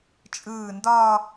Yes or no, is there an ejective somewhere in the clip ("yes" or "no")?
yes